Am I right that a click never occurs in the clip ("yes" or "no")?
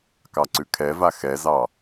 no